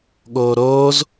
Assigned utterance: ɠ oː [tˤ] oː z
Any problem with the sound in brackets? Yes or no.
yes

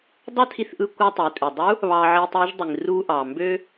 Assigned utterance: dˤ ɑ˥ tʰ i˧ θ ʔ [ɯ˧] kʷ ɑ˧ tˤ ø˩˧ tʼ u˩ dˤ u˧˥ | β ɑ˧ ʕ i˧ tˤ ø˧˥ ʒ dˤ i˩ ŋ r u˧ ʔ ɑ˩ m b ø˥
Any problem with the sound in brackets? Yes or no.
no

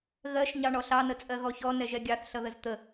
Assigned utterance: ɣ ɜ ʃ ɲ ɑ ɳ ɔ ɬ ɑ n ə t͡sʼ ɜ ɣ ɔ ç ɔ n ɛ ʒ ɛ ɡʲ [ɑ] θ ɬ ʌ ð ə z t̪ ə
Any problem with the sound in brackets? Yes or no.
no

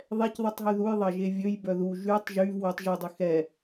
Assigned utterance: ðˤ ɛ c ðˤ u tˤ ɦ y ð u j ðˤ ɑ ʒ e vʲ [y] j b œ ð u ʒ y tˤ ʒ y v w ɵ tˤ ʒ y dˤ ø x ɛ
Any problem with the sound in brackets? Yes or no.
yes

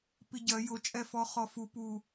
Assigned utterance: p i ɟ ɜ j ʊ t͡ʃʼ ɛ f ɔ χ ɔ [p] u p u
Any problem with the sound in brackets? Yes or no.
yes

